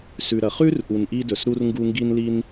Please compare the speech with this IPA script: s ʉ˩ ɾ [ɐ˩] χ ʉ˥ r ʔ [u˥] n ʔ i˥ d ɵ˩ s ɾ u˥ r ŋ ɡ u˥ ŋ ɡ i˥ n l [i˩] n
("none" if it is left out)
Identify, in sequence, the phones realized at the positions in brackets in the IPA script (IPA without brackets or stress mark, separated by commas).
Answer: ɐ˩, u˩, i˥